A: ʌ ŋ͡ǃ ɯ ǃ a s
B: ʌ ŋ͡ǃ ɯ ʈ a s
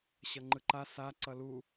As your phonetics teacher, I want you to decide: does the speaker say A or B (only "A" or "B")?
A